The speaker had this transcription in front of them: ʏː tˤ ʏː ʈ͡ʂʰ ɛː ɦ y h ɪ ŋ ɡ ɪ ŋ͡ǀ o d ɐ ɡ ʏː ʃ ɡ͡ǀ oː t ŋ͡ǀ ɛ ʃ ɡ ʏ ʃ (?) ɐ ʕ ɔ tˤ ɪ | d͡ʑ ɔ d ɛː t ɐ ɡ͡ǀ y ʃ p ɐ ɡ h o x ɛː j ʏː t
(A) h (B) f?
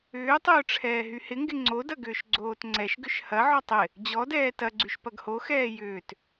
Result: A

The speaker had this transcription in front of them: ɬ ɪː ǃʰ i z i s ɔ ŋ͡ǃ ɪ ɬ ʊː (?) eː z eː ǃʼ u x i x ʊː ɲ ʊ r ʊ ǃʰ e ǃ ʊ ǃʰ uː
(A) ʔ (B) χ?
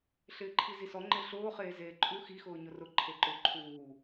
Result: B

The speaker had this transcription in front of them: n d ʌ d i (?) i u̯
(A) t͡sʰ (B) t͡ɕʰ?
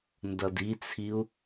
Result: A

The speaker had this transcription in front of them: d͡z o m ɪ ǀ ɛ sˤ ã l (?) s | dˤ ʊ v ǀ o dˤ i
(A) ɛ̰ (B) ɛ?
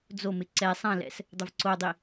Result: A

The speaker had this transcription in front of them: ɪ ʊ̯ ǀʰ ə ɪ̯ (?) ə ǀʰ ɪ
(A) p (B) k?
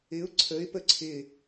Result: A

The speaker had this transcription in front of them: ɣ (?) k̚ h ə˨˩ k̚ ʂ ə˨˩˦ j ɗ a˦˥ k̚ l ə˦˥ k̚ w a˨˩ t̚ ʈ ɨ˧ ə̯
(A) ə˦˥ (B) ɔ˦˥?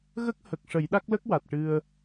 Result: A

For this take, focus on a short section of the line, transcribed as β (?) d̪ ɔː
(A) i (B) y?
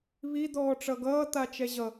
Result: A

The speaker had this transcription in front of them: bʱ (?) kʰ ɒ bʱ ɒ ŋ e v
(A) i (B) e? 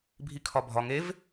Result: A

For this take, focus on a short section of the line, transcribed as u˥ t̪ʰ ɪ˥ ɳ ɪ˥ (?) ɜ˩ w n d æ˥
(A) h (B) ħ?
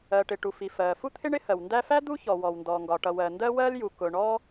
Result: A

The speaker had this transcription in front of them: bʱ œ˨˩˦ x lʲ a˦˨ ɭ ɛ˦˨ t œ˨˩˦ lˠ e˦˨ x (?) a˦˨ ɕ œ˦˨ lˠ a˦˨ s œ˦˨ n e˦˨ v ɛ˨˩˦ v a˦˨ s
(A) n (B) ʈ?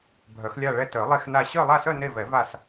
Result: A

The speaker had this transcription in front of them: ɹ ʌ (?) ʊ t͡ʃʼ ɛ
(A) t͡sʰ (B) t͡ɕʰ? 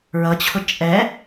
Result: B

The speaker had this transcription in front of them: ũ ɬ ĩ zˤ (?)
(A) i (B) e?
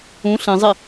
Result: A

